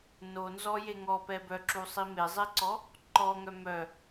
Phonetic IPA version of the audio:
nonzɔje ŋɔpɛ bœǁusˤi mezˤeǀɔ | ǃɔŋœ mœ

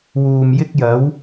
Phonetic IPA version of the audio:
wuː˨mjɪ˥k̚jɐ˨˥w

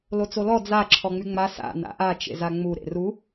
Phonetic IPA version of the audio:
lot͡solɔ d͡za ǁʰɔŋ͡myŋ͡ma sa̰ na̰ʔa t͡ʃḛzaŋ͡mu ɾḛru

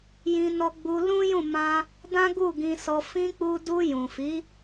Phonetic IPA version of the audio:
jĩ˧nɔ˧ɡ͡bu˧ lũ˦jũ˦˨ mã˧ | dã˦ɡu˦˨ɡĩ˧sɔ˧ fĩ˧k͡pu˧ du˧jũ˨fi˨˦

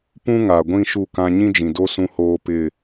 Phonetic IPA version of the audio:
pũ˦ ŋa˨ɡʷĩ˦ ʃu˦˨kã˦ ɲĩ˦d͡ʒĩ˨do˦ sũ˦hoː˦ pɪ˦˨

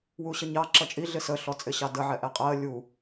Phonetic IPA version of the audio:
wuɕəɲɑ ǁʌt͡ʃʼi ɮɪsə ɬɔt͡sʼɪɕɑdə ʕɛʔɛqʼɜ lʲu

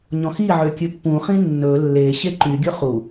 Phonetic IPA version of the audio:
ɲɔ̃xiʕø kʲʉpːũχĩ nːɵ lːe ɕeǃyɡʲɵ χu

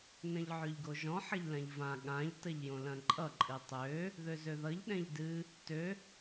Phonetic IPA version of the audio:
nɐ̃ʎʕøʎɡoʒɔ̃ ħɐʎlãʎvã ɠãʎ tɐʎjõlɐ̃ǃʼʌ ǃʼɨtˤø | ðøzøðʌʎ ɗɛ̃ʎdɨ | tø

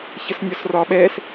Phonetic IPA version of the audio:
çəsnʲɒsrɒɓɛs

